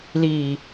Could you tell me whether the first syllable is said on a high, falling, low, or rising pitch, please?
low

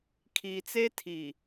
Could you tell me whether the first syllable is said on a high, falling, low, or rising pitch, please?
low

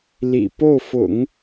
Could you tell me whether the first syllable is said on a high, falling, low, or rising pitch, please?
low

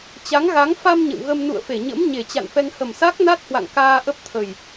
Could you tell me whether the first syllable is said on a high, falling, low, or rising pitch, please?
rising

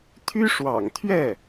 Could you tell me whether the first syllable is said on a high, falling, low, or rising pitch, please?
high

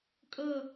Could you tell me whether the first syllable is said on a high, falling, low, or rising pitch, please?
falling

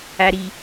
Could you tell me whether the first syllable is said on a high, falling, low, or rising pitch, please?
low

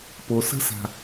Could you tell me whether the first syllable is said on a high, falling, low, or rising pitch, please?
low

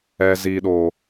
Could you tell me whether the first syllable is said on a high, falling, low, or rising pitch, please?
low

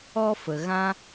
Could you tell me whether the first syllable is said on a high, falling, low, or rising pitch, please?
high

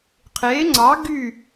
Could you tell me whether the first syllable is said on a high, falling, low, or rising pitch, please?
rising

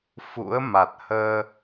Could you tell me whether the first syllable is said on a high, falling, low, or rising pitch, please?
rising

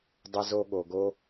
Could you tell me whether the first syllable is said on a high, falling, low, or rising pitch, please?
high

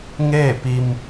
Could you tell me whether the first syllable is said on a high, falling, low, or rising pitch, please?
falling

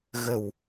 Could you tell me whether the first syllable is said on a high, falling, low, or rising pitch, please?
low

